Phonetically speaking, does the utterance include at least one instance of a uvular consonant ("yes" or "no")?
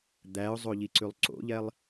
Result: no